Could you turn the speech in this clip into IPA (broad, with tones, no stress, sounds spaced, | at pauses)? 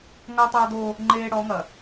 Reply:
ŋ ɐː˦ tˤ aː˦ d̪ oː˦ | ŋ͡ǃ eː˦ ɽ ɔ˨˦ ŋ ɐ˨